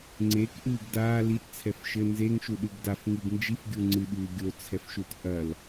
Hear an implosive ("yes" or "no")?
yes